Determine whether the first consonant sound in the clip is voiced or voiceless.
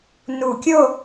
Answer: voiced